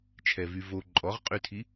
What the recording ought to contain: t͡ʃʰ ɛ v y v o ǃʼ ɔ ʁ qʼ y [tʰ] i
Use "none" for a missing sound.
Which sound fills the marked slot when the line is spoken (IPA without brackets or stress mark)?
tʰ